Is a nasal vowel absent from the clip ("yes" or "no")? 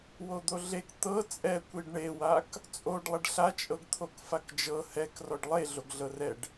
yes